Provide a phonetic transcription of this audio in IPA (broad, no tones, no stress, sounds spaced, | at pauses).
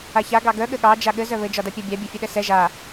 a ç a ɡ ɑ ɡ œ ɠ ɘ ɠ ɑ d͡ʒ a ɠ ɘ z œ β ɘ d͡ʒ ɒ d a pʲ a bʲ ɑ bʲ a fʲ ɘ ɗ ɛ s ɛ ʒ a